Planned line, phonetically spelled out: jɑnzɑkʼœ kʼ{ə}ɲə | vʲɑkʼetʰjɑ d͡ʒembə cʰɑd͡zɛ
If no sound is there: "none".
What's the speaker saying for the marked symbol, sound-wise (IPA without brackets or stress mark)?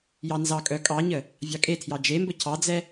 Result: ɑ